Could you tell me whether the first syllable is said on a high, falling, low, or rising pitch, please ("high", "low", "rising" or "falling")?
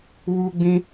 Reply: high